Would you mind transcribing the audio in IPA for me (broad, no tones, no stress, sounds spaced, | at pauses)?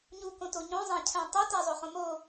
ɲ u k õ t o ɲ õ zˤ æ̃ cʰ æ̃ tˤ e t æ zˤ o χ õ m o